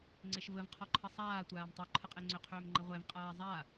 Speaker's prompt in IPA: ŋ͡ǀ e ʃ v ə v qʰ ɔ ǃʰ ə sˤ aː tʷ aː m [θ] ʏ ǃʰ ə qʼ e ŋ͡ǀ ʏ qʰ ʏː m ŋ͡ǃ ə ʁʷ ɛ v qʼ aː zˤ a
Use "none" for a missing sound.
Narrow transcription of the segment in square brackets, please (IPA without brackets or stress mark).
tˤ